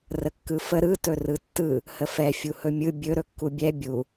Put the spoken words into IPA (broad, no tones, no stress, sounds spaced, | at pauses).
r ə kː ɯ f ə ɾ ɯ t ɵ r ɯ tː ɯ | h ə f ɛ fʲ u h ɵ mʲ ɯ bʲ ɵ ɾ ɵ kː u bʲ ɛ bʲ u